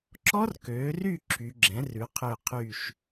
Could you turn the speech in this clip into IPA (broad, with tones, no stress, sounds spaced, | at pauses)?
ǁ ɔ˦˥ r k øː˩˧ r y˦˨ ǁʰ y˩˧ ɡ͡ǁ ɛ̃˩˥ r ʉ˩˧ qʰ ø˦˨ qʰ y˦˨ ʃ